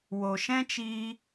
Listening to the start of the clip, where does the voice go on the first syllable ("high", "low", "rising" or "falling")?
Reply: low